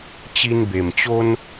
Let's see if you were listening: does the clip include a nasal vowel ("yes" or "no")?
no